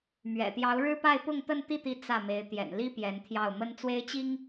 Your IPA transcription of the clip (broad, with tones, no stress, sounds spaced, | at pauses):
m ɥ ɛ̰˨˩ t̪ j ɑ˧˥ ʊ̯ ɻ ɻ̩˥ p a˥˧ ɪ̯ p ʊ˥˧ ŋ t̪ ə˥˧ n t̪ i˥˩ t̪ i˧˥ t͡s ä˥˩ m e˧˥ ɪ̯ t̪ j ɛ̰˨˩ n l i˥ p j ɛ˧˥ n t̪ʰ j ɑ˥˩ ʊ̯ m ə˥ n t͡s w e˥ ɪ̯ t͡ɕ i˥ ŋ